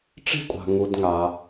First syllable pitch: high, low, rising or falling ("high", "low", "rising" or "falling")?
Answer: high